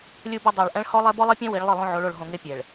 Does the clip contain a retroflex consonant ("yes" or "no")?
yes